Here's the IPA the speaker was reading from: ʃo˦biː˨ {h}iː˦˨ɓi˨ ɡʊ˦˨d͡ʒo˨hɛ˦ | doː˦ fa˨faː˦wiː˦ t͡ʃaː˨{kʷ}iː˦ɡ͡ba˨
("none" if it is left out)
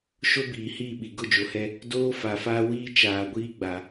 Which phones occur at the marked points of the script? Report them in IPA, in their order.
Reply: h, ɡʷ

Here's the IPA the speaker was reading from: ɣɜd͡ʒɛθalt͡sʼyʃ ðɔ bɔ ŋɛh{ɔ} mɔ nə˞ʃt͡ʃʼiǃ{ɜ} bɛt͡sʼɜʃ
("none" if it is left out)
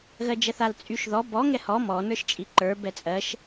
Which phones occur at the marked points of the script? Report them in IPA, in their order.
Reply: ɔ, ə˞

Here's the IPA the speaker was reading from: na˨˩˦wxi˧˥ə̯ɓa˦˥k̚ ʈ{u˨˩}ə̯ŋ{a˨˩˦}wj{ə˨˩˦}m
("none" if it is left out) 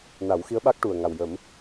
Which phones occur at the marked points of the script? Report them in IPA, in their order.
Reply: u˨˩, a˨˩, ə˨˩˦

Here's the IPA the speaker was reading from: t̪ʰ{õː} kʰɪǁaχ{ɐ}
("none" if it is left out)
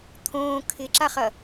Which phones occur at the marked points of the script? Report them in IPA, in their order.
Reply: õː, ɐ

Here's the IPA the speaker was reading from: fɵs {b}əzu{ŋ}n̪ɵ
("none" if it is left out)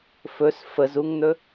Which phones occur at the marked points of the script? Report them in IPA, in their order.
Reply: f, ŋ

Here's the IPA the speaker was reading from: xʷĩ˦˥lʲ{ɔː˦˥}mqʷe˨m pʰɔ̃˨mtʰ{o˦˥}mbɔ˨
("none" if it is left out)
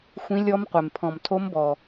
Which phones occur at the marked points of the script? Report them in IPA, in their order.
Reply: ɔ˦˥, o˦˥

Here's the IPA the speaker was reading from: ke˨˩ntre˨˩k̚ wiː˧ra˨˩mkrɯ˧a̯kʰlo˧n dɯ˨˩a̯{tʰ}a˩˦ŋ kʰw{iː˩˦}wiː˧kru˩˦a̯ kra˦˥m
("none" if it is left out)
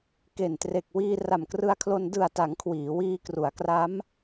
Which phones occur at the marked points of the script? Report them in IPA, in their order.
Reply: t, iː˩˦

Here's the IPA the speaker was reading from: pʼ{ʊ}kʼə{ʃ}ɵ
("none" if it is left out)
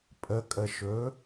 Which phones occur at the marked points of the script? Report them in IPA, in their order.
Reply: ə, ʃ

